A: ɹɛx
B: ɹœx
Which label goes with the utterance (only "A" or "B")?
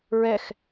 A